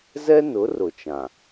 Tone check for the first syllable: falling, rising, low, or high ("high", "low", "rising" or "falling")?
high